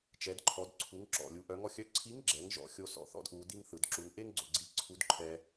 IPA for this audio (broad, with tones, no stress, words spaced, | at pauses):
t͡ʃɛ˩˧dǃʰɔ˩˧d ǀʰu˩˧ŋǁɔ̰˩lʲu˩˧ ʔœ˩˧ŋɔ˧xʲœ˧˥ ǀʰi˧˥ŋɡ͡ǁɛ˩˧ŋ ʒɔ̰˧˥xʲo˧ sɔ̰˧θɔ̰˥dʔu˩˧ di˥ŋθɯ˩˧d ǁu˩˧ŋʔe˥ŋɡ͡ǀo˩ɡ͡ǀi˧˥ ǀʰu˧˥dǃʰɛ˧